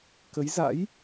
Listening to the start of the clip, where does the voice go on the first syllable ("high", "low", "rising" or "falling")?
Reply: rising